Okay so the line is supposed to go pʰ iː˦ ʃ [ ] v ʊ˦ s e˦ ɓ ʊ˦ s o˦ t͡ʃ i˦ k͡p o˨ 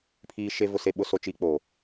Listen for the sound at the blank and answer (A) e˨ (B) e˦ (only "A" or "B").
B